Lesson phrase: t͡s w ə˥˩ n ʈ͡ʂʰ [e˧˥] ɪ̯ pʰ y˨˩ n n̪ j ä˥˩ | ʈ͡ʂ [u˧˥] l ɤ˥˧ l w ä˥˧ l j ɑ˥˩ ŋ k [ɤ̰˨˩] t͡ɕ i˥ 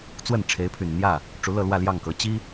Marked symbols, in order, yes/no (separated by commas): yes, yes, no